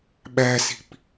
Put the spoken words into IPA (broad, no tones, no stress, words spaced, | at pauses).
ɓæsi̤p